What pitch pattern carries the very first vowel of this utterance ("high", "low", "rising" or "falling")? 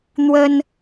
high